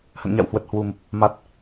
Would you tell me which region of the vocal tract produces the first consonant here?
throat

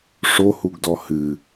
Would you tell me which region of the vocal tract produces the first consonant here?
retroflex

